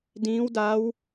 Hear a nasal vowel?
yes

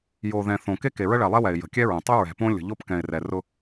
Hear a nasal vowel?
yes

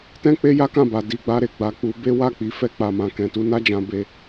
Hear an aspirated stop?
no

